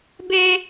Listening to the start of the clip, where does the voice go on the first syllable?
high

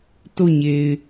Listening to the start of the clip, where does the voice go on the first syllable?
falling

